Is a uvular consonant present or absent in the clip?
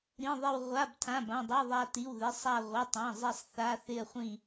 present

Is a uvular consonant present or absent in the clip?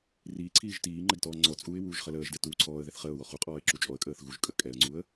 present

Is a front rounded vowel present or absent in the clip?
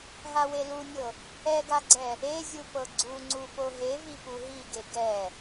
absent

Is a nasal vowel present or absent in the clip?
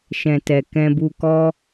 present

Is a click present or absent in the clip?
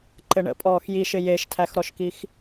present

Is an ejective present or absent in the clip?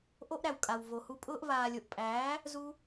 present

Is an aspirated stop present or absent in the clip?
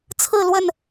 present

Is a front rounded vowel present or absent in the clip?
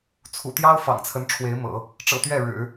absent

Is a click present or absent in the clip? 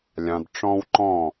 present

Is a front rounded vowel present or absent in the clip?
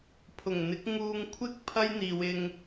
absent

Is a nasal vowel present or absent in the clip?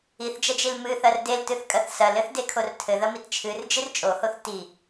absent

